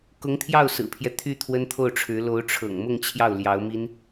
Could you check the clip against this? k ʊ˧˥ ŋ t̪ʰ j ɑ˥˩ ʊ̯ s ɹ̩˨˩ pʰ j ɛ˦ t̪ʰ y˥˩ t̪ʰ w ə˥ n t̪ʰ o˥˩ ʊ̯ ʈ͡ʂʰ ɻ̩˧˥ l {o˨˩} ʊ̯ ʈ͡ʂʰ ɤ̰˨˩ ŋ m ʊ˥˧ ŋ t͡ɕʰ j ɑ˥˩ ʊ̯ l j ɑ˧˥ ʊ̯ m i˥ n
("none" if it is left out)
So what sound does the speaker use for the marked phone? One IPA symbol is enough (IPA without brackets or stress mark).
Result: o˧˥